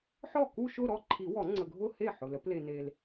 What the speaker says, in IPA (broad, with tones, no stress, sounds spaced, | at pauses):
ħ ɔ˥˩ k u˥˧ ʃ ʊ˥˧ ɾ ɔ˥˩ ǃʰ i˨˩˦ w ɔ˨˩˦ ŋ͡ǀ ə˨ ɡʱ ʊ˥˧ h e˥˩ ħ ʊ˨ l ə˨˩˦ p l e˨ n e˨ l